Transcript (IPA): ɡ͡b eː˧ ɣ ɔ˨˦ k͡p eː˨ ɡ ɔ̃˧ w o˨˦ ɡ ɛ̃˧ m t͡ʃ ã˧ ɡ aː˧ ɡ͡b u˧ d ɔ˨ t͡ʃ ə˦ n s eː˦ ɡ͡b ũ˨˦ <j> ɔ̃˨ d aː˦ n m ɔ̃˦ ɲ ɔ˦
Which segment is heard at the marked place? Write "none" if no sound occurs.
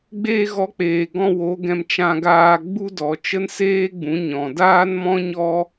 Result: ɲ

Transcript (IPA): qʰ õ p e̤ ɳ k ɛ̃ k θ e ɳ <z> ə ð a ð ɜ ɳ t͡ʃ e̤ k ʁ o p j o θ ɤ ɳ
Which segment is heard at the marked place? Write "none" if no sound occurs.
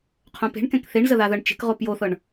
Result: z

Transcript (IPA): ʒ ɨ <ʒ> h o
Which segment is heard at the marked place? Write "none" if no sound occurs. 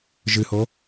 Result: none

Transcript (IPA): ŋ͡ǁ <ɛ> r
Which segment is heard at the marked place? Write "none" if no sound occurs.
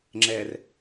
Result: ɛ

